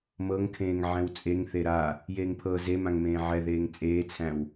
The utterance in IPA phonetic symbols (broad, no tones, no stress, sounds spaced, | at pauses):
m ɤ ŋ kʰ ẽː ŋ ʕ ɛ̃ w t͡sʼ e ŋ θ e ɾ a | j eː ŋ pʰ ɤː z e m ã ŋ m ẽː ʕ ɛ ð eː ŋ t͡sʼ eː t͡sʰ æ̃ w